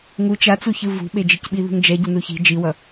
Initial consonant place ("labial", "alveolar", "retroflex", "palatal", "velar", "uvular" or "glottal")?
velar